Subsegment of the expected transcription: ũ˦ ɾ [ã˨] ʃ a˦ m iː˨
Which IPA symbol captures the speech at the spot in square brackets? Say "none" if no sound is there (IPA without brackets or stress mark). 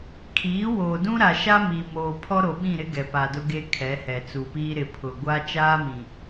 a˨